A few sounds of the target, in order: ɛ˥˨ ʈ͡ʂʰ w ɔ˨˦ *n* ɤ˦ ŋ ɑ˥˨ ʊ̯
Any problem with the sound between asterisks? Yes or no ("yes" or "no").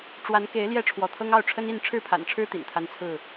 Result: yes